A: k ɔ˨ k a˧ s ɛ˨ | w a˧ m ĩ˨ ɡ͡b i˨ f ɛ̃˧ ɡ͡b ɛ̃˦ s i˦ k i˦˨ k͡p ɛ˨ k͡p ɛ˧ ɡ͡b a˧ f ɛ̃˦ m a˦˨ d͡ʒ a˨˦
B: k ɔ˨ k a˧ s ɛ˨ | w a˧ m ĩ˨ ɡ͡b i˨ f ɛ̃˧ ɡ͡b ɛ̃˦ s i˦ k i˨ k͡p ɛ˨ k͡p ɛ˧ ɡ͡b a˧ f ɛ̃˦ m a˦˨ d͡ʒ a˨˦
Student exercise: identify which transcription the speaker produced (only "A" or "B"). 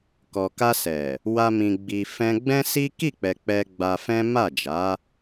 A